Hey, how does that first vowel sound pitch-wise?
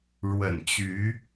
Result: low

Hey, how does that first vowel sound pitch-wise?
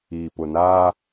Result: low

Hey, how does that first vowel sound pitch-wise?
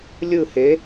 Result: falling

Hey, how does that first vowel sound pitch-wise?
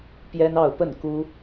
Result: high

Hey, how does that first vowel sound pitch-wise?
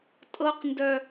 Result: high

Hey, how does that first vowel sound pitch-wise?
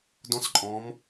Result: rising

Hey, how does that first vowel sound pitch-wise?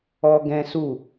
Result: high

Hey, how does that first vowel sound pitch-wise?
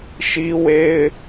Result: high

